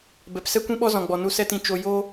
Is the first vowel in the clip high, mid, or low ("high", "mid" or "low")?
mid